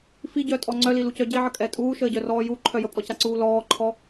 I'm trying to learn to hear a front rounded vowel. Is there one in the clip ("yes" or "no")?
yes